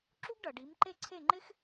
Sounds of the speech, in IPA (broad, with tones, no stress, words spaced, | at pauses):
ǁu˥ɡɖʌ˩ ɖi˩˥mǃe˥˩ǀʰe˥˩ ŋ͡ǃɪ˥x